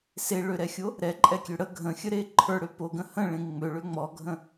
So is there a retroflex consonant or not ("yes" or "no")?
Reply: yes